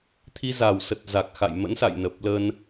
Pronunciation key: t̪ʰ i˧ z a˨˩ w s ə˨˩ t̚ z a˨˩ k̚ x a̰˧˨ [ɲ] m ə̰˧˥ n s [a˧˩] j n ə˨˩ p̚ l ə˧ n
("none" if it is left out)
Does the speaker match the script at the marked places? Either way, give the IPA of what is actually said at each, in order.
j, a̰˧˨

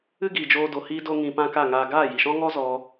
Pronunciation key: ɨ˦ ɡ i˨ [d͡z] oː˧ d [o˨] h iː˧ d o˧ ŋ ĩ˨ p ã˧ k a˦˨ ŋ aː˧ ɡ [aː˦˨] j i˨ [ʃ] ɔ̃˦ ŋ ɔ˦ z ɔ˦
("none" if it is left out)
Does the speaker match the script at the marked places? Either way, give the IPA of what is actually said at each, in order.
d͡ʒ, o˨, aː˦˨, ʃ

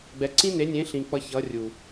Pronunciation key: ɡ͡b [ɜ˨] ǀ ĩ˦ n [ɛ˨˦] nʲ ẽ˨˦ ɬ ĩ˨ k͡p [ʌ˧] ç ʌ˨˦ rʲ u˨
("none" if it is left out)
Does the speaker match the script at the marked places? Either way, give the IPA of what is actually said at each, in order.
ɛ˨, e˨˦, ʌ˧

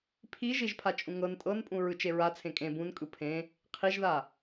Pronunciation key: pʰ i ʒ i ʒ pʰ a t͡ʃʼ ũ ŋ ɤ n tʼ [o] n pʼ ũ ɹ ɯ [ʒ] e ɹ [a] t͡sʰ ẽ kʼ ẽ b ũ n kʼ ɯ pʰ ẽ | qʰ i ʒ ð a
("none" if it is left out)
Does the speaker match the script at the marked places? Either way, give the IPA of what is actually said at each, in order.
ɤ, t͡ʃ, a

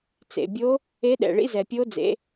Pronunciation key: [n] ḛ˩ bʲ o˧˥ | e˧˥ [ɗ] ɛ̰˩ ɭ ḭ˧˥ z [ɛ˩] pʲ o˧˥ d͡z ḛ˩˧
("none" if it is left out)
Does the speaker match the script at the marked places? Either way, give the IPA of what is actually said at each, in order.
t͡s, ɗ, ɛ˩

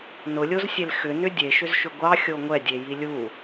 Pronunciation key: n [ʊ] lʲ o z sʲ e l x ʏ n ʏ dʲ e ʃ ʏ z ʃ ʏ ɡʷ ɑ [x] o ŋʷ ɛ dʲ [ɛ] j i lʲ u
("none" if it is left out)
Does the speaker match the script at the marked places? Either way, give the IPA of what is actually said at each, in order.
ʊ, xʲ, e

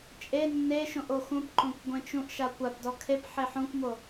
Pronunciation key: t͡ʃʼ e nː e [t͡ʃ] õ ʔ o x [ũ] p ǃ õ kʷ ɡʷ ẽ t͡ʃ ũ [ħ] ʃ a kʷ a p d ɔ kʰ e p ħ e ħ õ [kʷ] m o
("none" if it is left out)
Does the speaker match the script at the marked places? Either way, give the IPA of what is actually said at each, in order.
ʃ, ũ, ʔ, kʷ

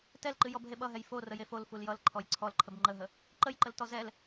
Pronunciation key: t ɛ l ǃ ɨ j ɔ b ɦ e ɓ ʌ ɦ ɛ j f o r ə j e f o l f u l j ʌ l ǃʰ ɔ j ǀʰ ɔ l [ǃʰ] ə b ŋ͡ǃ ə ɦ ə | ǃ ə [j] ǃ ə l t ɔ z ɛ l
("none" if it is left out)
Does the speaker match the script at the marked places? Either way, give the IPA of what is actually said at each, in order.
ǃʰ, j

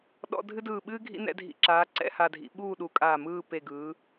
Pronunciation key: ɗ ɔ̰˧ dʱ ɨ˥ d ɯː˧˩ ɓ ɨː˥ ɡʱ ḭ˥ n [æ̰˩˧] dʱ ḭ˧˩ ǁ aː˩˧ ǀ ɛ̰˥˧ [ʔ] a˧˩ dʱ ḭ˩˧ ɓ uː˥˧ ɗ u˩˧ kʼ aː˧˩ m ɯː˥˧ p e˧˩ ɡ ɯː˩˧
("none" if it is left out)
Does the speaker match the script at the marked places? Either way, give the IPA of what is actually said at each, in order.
ɛ̰˩˧, h

